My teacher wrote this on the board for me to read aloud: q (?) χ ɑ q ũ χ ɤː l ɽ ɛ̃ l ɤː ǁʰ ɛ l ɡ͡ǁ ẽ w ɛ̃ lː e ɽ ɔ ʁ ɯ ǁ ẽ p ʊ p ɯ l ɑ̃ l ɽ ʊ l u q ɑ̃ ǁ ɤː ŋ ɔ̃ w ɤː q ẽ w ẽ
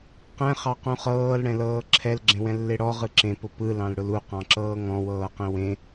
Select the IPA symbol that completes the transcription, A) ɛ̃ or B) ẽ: A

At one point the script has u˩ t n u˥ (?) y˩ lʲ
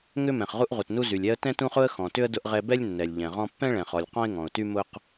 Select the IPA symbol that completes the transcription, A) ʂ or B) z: B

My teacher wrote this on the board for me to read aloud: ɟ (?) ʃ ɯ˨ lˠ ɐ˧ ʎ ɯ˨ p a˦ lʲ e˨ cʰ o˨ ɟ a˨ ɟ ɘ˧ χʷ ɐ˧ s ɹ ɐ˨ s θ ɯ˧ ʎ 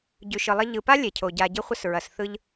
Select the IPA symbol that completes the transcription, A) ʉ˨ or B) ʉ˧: A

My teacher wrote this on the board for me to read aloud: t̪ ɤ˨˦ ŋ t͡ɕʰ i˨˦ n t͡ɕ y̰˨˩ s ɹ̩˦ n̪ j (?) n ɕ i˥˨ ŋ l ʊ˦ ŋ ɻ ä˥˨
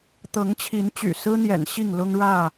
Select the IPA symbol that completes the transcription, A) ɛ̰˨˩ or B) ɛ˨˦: A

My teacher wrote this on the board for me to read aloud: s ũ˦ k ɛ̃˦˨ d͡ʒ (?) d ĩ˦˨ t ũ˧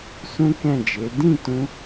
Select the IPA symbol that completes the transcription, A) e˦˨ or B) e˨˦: B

